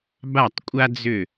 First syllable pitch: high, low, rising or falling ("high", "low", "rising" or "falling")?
falling